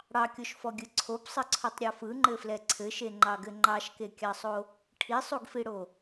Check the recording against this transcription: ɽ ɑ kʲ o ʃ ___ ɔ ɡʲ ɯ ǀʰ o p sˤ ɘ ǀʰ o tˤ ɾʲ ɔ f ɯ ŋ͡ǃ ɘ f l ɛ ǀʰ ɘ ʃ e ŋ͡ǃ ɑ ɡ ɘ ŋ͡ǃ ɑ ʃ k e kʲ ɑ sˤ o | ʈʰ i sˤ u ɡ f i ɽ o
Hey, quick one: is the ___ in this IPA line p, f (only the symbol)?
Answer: f